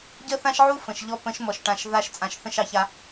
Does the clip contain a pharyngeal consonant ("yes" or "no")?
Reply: yes